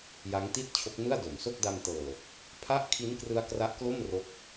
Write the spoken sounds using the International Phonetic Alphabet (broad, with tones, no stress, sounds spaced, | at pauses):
j a˦˥ ŋ t i˥˩ t̚ t͡ɕʰ o˦˥ k̚ n ɯ˥˩ a̯ d o˩˦ m s o˥˩ k̚ d a˧ m t ɤː˨˩ | pʰ a˥˩ ʔ kʰ i˦˥ n k r ɯ˦˥ a̯ k r a˦˥ ʔ k l o˥˩ m r o˦˥ k̚